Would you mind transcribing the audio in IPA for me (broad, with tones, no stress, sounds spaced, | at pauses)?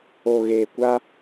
o˨ ɣ eː˨ kʷ a˦